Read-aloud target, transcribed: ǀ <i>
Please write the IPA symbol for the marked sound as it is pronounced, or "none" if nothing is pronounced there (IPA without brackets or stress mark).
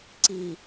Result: i